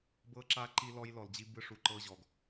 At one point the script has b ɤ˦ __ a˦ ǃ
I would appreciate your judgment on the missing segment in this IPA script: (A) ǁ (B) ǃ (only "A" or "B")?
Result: A